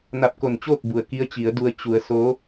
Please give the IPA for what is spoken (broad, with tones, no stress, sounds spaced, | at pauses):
n a˧ p̚ k o˧˩ n t͡ɕ oː˥˨ k̚ b u˩ ə̯ k i˧˥ ə̯ t͡ɕ i˩˧ ə̯ d u˧ ə̯ t͡ɕ u˧ ə̯ s o˧˥